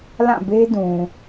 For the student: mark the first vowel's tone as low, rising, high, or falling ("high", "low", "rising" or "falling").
falling